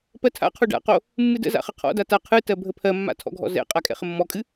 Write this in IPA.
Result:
pɜtʰa̰qʰo ɖa̰qo | mːɨdə̰za̰ χəqʰɔ̰da ta qʰɨtɜ bʱəpʰɜmːa̰ tʰɔ̰ɡʱɔ̰zɛ̰qʼa kʼɛ̰χəmːɔkʼɨ

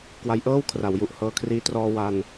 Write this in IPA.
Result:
kwa˧jʔɤː˥˩wkʰra˩˦wju˨˩ʔ hɤː˧kʰriː˦˥ trɔː˧ wa˧n

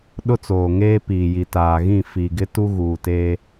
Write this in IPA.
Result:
ɗʊ˦t͡soː˨ŋeː˦piː˨ ji˨taː˨ɣĩ˦˨ fi˨ɡɪ˦ tu˦ɣuː˨te˦

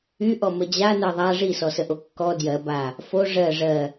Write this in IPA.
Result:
yʔɔ məd͡ʑanɜ ðˤa ʐisɔsəʔo kːɔ djɜ ba | fo ʐɜ ʐɜ

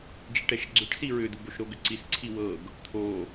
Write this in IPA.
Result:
d͡ʒiʈɛʃɡ͡ǀʏʈ siɹʏd̪ub oʃɾoɡʏǀis ǀʰiwɤɡ | t̪ʰo

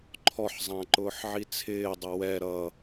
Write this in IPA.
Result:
ǃʰɔħzˤæ̃ ǃʊːħʕit͡sʰɪːdˤə wɛ ɾʌ

